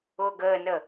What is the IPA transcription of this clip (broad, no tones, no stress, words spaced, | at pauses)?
ʊːɡəːnə